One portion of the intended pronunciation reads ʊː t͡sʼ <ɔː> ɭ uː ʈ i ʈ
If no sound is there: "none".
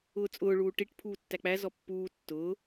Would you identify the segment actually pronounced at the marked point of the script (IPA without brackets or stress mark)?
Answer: ʊː